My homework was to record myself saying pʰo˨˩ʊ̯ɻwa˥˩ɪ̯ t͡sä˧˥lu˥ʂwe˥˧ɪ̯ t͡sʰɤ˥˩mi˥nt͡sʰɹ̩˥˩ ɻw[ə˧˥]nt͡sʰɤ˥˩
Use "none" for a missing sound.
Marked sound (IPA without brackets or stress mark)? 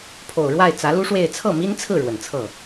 ə˨˩